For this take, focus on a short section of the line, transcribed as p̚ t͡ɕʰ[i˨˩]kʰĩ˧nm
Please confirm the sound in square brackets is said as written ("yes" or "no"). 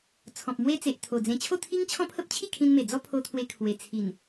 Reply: no